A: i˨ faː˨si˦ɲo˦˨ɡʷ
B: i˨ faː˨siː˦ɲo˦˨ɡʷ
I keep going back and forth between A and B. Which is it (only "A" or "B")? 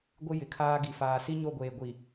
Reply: A